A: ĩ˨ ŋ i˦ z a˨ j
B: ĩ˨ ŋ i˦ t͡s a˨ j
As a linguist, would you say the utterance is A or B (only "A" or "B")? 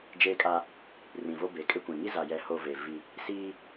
A